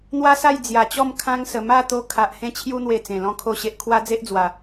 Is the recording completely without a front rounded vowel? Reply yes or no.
yes